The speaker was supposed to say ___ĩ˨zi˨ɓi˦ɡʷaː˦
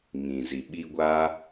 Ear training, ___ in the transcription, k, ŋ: ŋ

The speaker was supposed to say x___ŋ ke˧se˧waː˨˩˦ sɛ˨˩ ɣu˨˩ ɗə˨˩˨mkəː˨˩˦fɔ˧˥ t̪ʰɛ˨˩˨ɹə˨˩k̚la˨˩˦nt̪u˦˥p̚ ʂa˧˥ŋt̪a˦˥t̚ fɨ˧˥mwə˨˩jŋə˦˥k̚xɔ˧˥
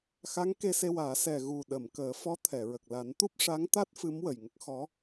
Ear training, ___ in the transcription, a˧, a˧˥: a˧˥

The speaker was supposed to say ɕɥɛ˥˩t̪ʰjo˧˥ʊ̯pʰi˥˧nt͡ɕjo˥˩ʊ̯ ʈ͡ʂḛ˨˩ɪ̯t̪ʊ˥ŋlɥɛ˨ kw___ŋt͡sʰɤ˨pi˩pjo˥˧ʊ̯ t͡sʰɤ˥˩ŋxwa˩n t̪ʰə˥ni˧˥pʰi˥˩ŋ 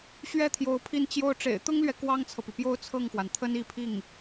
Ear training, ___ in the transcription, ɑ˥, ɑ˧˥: ɑ˥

